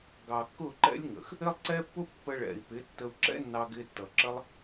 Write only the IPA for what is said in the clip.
ɡɑ˨kːʊ˦˨ǃɛ̰˦lʲŋə̰˨x | ɪ˦lˠǀɛ˦pːʊ˦ pːə˧ɭɛ̰˨i̯pɪ˨˦ tːə˧u̯ǁɛ̰˦ nːɑ˧ɡɪ˧tːʌ˨ǁə˦lˠ

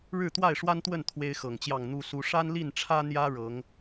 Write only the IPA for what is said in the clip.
ɻɻ̩˥˨t̪wa˥˨ɪ̯ʂwa˦nt̪wə˥˨n t̪ʰwe˦ɪ̯xɤ˨˩ŋt͡ɕjɑ˥˨ŋ n̪u˦su˦ ʂa˦nli˥˨nʈ͡ʂʰä˦ n̪jä˦ ɻɤ˨˦ŋ

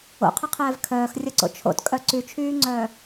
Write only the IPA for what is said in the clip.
o̰qʰɐqʰɛːv kʰœːxrʲɐǀo̰ t͡ʃʰo̰tkʼœ ǀyt͡ʃʰyːŋ͡ǀœː

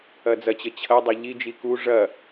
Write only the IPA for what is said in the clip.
ɐd͡zɐt͡ɕə t͡ɕʰɐdˤɐ ʎid͡ʒi ku ʐɐ

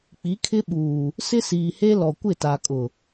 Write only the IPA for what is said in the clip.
k͡pi˨˦kʰɪ˦ɓuː˨ | sɪ˦siː˨he˦ lɔ˨kʷɪ˦˨ta˨kʼʊ˨

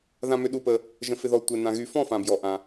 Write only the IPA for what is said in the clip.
ðã˧mʏ˧ɗu˧pə˧ | ʒə̃˧fɪ˧ðɔ˧ tʷɪ˧ nã˧ɣy˧ fɔ̃˥˧fã˧bjɔ˧ ʔã˧

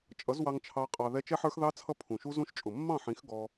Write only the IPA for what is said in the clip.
t͡ʃʼʌ˨˦zwɑ˧ŋt͡ʃʰɑ˧ qʼɑ˧ðɛ˦ t͡ʃɛ˦ħə˞˦xðɑ˦t͡sʰʌ˦˨ pʰũ˨ʃu˦zũ˦ʃ t͡ʃʼʊ˨mːɑ̃˦˨ħĩ˨˦x ɡɔ˧

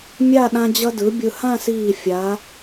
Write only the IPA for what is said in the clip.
mʲa˥˧ ɗã˧d͡ʑʌ˧dɯ˩˧ bʲɯ˧˩hã˥˧siː˧˩ fʲa˩˧

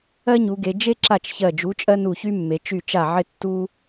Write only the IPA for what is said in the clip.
ɜ˥ɲu˩˧ɡe˩˧ d͡ʒe˥ ǁa˥˩t͡ʃçɜ˧˩d͡ʒu˨˥t͡ʃʼɜ˥ nu˧˩çy˥mːe˩˧ t͡ʃy˥˩t͡ʃa˥˩ ʕɪ˥tːu˥

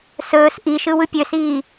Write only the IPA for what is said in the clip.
sɵːs ʔiʃɯ wɯpʲøsiː

